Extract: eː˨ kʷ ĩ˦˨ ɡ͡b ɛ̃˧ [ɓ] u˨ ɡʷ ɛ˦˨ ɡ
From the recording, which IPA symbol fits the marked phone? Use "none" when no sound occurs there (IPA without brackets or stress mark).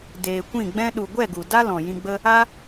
ɗ